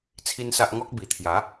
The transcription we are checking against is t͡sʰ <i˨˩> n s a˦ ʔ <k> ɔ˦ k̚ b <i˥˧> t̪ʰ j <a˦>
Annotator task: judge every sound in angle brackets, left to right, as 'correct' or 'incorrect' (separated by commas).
incorrect, incorrect, incorrect, incorrect